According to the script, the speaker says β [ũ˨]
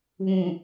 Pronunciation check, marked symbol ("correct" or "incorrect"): correct